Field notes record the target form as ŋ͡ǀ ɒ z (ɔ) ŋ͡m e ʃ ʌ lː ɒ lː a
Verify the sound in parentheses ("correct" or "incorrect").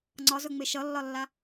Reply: incorrect